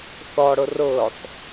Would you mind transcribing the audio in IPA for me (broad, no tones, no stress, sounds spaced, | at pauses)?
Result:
θ ɔ ɽ ʊ r ʊː sˤ